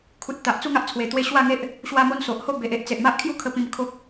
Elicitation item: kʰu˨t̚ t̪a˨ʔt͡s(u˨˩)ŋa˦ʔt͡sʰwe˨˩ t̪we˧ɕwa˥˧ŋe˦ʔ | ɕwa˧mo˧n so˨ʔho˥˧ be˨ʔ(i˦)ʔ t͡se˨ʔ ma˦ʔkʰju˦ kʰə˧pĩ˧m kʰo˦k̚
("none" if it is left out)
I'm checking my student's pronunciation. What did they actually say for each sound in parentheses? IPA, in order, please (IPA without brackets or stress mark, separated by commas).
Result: u˥˧, e˦